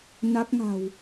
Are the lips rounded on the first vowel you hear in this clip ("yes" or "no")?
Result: no